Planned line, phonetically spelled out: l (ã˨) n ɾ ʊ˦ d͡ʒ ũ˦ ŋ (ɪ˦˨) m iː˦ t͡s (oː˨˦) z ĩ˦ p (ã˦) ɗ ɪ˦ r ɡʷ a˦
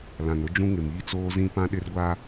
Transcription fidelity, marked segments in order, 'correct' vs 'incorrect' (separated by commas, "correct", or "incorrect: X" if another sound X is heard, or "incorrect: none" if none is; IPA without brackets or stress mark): correct, incorrect: ɪ˨, incorrect: oː˦, correct